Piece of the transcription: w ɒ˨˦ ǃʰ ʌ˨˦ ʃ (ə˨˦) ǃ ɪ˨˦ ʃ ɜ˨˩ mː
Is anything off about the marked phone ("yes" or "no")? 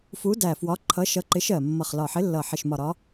yes